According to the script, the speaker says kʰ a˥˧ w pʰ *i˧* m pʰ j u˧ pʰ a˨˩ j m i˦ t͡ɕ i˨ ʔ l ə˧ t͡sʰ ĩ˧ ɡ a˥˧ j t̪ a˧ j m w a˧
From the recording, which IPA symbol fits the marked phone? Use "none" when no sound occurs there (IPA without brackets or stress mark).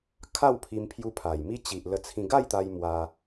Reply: i˧